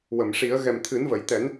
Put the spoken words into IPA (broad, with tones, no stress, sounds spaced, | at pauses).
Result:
w ə˨˩˨ m ʂ i˨˩˦ ə̯ ɣ ɛ˨˩ m t̪ʰ ɨ˨˩˦ n v ə˨˩˨ j t̪ ɛ˨˩˦ n